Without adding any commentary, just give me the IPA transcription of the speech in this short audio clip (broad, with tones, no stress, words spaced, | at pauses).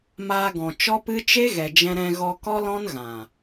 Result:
maː˧ɡɔ̃˨ t͡ʃɔ˦pɨ˦ t͡ʃe˦ɣɛ˨d͡ʒɛ̃˧ɾɛ̃˧ ɣɔ˧kɔ˦lɔ̃˦nɣã˨